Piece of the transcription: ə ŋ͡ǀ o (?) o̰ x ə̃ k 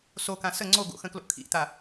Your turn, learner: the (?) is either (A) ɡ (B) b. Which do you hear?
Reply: A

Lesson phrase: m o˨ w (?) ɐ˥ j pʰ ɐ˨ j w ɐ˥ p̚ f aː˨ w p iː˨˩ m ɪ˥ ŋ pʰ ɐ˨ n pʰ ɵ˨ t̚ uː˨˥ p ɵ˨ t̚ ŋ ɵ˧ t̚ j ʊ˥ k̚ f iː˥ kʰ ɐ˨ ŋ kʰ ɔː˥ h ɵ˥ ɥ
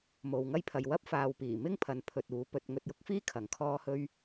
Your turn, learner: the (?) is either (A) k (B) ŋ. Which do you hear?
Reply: B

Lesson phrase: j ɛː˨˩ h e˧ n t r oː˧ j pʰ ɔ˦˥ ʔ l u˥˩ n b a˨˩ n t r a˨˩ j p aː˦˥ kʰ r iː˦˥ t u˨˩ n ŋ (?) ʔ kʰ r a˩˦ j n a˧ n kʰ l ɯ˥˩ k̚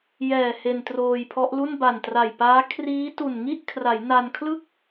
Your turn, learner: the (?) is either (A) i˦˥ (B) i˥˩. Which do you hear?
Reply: B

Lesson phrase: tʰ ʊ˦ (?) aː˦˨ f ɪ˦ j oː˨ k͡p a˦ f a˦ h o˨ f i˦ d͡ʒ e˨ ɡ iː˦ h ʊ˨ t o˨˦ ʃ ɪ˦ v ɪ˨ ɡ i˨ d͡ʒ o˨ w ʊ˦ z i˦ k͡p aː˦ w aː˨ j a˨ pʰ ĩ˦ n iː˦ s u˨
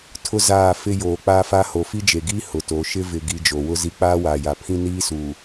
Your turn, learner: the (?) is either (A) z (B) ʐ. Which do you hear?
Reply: A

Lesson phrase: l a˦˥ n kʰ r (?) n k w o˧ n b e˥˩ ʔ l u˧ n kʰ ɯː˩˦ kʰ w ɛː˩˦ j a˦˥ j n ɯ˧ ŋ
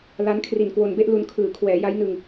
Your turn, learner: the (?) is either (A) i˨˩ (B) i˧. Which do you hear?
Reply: A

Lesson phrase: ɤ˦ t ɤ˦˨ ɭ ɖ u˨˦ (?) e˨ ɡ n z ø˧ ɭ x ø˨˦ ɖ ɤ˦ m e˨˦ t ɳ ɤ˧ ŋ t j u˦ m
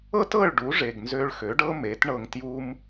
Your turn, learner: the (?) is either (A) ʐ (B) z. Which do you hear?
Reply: A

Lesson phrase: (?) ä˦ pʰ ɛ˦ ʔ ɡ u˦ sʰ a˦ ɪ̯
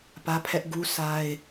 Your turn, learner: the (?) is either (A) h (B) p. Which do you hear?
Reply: B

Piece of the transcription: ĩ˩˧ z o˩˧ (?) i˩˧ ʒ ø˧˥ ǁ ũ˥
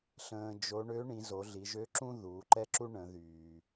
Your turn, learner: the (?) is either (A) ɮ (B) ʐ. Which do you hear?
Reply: A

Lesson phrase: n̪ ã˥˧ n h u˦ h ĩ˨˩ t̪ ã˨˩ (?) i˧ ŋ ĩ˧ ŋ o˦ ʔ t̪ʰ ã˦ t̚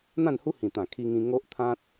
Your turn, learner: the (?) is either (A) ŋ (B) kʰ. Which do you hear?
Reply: B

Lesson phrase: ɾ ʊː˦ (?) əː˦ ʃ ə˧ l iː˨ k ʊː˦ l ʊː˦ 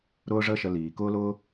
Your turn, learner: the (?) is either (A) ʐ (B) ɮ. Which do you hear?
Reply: A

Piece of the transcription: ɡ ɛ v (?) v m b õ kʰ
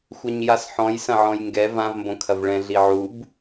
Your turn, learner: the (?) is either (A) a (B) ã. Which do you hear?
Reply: B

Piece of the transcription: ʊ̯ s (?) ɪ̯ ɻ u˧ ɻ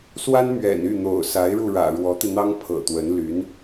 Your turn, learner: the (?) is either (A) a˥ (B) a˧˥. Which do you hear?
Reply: B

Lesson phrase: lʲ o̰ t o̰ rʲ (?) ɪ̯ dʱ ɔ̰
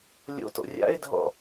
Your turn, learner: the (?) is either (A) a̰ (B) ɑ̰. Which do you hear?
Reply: A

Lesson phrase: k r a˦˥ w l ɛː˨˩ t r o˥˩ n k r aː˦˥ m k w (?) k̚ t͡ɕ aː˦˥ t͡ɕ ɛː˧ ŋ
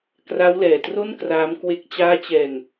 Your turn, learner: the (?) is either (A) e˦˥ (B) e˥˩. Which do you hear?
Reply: A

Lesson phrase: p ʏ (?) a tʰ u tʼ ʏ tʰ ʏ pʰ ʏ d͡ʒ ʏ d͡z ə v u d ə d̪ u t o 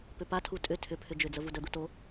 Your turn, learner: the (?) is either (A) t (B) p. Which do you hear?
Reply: B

